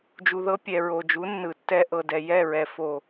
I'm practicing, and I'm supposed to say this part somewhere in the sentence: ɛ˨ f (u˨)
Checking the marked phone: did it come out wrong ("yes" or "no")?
yes